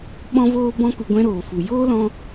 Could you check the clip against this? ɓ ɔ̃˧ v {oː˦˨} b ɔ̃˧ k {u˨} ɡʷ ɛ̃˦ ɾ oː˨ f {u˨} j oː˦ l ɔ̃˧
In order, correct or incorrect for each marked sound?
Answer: incorrect: oː˧, correct, correct

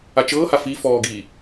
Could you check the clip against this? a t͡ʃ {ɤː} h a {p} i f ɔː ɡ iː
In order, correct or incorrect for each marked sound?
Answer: correct, incorrect: f

